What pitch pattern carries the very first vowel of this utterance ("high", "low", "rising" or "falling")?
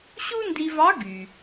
high